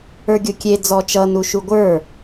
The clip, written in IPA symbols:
ə˞ɡʲokʲe d͡zɔt͡ʃʌ nuʃuɡʷə˞

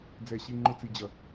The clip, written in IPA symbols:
d͡zɛ˧˩ ɕi˥˧ŋ͡ǃʊ˥˧t͡si˧d͡ʑʌ˧˩

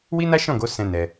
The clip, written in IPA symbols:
wi˦na˦ʃɔ̃˦˨ɡo˨˦ sɛ̃˦nɛ˧

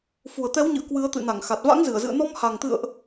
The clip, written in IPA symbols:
fu˨˩ə̯t̪ɛ˨˦wɲɨ̰˧˨ə̯ kwɨ˨˦ə̯t̪ɨ̰˧˨ na˧˩ŋxa˨˩t̚ va̰˧˥ŋzɨ˧˩ə̯zɨ̰˧˨ə̯ nɔ˧mha˨˩ŋ t̪ɨ̰˧˨ə̯ʔ

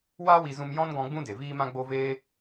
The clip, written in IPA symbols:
waː˦wi˧zũ˧m jɔ̃˦nɡɔ̃˧ ɡ͡bũ˦de˨viː˦ mã˦ɡ͡bo˦veː˦

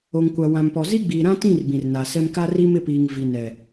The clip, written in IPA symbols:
o˨ŋkʷa˨wã˨mpɔ˨ zi˦ɡ͡biː˨ɾã˦tĩ˦˨r bĩ˨rna˨sɛ˦m ka˦ri˦mɪ˦˨piː˨ŋ vi˨nɛ˨

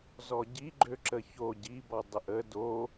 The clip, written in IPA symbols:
zɔɟiɡ͡ǃøǁə ço ɟibɔ dˤəʔə do

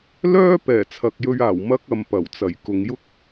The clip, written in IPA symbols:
lœː˥ pɛː˨˩t͡sʰɐ˨k̚jɵ˧ɥaː˨˩w mɐ˥k̚ɐ˨m pɐ˨˩wt͡sɐ˨˩j kʊ˨ŋjʊ˥k̚

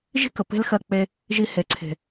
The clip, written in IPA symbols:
ʒi̤˦kə˨ pe̤˦lxɜ˦˨k͡pe˧ | ʒi˧ he˨ǀʰe̤˨

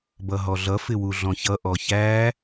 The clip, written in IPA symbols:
bʌɦɔɮʌ fɪwuɮɔ̃çʌ ʔɔçæ

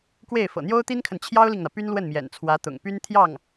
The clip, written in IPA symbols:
kwe˥˩ɪ̯ fɤ̰˨˩n̪jo˥ʊ̯t̪i˥nkʰə˨n t͡ɕʰjɑ˥ʊ̯li˨ŋn̪ä˩ py˥nlwə˥˩nmjɛ̰˨˩nt͡sʰwä˧˥ t̪ʊ̰˨˩ŋpy˥n t̪ʰjɑ˥˩ŋ

